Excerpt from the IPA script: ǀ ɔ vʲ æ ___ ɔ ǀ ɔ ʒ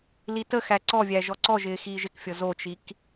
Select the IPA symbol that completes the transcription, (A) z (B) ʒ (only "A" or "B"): B